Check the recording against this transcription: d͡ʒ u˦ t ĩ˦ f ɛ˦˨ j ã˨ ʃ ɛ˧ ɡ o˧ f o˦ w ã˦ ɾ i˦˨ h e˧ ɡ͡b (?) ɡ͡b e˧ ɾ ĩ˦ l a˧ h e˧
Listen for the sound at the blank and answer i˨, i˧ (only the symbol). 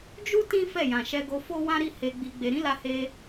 i˧